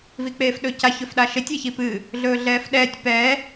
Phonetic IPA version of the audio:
v i k͡p eː f ɗ ɵ c a ç ɵ f ɗ a ʃ e tʲ e ç i p ɨ | ɮ ɵː ɮ ɛː f ɗ ɛː tʲ p ɛː

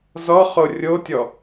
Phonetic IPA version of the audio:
z ɔ χ o rʲ o tʲ ɔ

